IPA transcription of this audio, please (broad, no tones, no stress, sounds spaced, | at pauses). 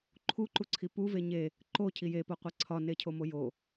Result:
ǃʰ u ǃ u ǀʰ i p u v e ɲ e | ǃ o cʰ i j e p o qʷ e ǀʰ ɒ n e cʰ o m o j o